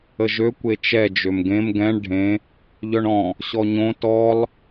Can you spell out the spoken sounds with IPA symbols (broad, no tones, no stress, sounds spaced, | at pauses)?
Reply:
ə ʒ ø kʷ e t͡ʃ ɛ d͡ʒ ø m ɡ ẽ m ɡ ɛ̃ ɳ ɖʱ ẽ | ʎ œ ɳ ɔ̃ | ɕ ɔ ɲ õ t ɔ lˠ